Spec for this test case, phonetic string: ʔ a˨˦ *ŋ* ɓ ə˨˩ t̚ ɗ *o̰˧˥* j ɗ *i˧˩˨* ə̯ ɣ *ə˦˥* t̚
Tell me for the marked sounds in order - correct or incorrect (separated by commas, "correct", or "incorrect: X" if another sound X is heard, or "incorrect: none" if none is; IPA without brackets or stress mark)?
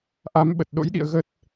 incorrect: m, correct, incorrect: ḭ˧˨, correct